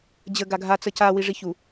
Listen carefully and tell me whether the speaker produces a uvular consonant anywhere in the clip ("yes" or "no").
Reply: no